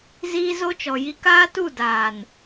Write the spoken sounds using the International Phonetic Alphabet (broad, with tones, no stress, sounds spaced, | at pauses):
z iː˦ z o˦ t͡ʃ ɔ˨ j i˦ k aː˦ t u˦˨ d aː˨ n